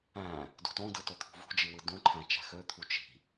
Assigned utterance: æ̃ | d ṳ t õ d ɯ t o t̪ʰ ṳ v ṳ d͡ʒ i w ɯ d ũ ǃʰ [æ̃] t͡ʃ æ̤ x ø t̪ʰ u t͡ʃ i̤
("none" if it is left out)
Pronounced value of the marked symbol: æ̃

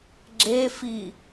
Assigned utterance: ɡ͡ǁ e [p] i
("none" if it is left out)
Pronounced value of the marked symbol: f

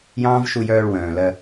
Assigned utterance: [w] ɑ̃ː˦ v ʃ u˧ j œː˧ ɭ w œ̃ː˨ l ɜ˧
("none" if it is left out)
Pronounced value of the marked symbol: j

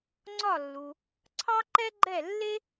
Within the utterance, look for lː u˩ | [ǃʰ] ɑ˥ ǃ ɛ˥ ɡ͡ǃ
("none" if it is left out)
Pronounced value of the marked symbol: ǀʰ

